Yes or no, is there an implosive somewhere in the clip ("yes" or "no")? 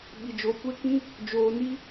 yes